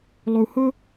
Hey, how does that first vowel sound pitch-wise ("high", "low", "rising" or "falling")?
low